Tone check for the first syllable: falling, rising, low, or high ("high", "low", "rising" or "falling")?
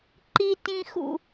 high